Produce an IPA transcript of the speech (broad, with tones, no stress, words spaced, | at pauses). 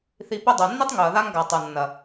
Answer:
θi˧pɵ˦ dˤo˨nːi˦tˤ ŋɵ˨ɐ̯ða˦ŋɡa˨ tˤo˨nːɐ˨